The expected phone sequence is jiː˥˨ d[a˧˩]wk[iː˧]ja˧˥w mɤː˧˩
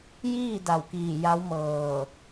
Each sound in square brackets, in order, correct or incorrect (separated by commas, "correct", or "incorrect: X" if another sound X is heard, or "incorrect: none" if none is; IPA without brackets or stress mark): correct, incorrect: iː˧˩